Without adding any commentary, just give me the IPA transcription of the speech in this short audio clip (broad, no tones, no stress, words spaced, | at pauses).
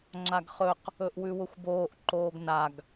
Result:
ŋ͡ǁaɡχɵq | ɵʔwʉwʊxʷboːʔ ǃoːɡnaɡ